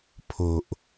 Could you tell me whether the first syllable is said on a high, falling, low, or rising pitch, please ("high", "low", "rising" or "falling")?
low